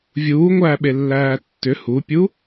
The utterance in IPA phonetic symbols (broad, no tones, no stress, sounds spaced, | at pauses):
vʲ uː ŋʷ æː ɓ e lː æː tː ʏ h u pʲ u